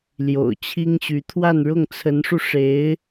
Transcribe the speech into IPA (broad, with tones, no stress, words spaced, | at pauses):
ljo̰˨˩ʊ̯t͡ɕʰi˥ŋɕy˧˥ t̪ʰwa˥˧nɻʊ˥˩ŋt͡sʰə˧˥nʂu˧ ʂe˧˥ɪ̯